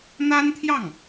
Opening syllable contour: high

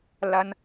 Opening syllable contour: high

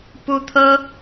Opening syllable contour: high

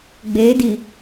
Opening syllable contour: rising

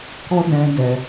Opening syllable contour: high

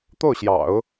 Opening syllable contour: falling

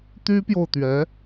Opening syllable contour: high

